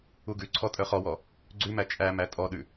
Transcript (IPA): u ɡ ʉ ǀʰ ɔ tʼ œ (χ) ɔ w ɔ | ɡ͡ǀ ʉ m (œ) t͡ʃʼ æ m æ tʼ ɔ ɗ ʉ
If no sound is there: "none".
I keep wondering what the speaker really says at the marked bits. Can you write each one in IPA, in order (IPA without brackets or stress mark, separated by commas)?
χ, æ